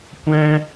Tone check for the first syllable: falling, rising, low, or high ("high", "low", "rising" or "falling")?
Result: high